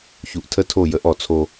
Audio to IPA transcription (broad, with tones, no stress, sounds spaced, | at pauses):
ç u˨ ʔ tʰ ə˦ tʰ o˦˨ j ə˨˦ ʔ ɔ˨ t͡sʰ o˦